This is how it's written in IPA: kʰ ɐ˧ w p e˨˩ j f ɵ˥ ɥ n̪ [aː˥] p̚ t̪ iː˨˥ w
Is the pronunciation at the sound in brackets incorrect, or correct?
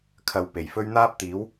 correct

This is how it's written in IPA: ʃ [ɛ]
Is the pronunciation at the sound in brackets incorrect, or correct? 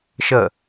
incorrect: ə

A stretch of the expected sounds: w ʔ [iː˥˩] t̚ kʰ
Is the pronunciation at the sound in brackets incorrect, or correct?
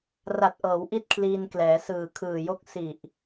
incorrect: i˥˩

